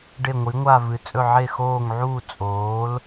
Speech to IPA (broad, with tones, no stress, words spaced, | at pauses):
ɖe˥˨ŋʷi˨˥ŋʷa˥˨vɨ˨˥ t͡sʼɵ˥˨ʕe˥˨ xoː˥˨ŋʕuː˥˨ t͡sʼoː˨˥l